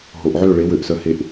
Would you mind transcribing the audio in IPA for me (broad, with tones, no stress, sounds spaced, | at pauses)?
ɦ o˨ ʔ ʕ ø˦˨ ɭ e˨˦ w ø˨˦ ʔ s œ˧ h e˧ ʔ